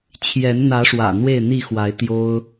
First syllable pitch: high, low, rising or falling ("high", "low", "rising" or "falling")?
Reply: rising